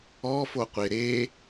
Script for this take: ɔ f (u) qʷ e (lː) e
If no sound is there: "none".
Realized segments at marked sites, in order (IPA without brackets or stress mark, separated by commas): o, ɾ